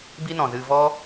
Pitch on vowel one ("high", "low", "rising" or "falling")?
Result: high